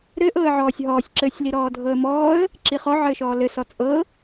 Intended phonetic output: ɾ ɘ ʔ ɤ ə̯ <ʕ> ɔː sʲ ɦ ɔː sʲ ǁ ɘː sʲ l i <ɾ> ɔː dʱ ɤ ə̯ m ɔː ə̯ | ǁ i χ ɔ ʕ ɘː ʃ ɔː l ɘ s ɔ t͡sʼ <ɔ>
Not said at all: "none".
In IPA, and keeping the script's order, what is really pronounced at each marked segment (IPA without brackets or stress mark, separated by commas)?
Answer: ʕ, ɾ, ɤ